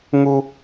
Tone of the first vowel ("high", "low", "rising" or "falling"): high